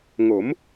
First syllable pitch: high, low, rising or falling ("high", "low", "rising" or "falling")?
rising